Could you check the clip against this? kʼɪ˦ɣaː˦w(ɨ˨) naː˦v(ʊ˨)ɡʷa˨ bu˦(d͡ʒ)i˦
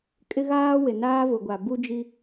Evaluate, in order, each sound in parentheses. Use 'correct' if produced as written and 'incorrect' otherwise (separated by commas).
incorrect, correct, correct